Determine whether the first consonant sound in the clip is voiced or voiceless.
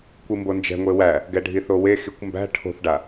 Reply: voiceless